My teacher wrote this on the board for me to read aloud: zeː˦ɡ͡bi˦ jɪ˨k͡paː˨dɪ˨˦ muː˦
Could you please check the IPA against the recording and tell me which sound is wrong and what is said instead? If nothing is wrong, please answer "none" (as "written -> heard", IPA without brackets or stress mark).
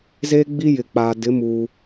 none